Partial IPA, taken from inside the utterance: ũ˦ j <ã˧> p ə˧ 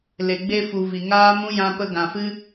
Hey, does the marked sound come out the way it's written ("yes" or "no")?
yes